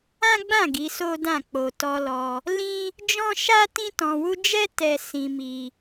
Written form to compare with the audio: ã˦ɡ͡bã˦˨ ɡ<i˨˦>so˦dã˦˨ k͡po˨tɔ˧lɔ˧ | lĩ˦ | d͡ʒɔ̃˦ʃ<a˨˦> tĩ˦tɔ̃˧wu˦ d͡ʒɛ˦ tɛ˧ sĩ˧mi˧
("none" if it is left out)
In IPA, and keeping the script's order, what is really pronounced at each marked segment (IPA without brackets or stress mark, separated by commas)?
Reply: i˨˦, a˦